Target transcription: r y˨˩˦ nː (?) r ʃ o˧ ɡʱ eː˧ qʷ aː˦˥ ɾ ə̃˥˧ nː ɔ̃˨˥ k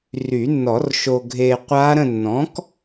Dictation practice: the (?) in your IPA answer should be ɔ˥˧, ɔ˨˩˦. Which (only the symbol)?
ɔ˨˩˦